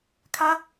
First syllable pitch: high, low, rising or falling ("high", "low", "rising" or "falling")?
high